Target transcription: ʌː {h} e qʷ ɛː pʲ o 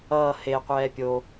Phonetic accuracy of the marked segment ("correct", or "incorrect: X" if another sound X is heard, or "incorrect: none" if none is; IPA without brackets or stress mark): correct